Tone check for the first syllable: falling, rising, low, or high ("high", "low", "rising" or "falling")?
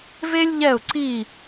high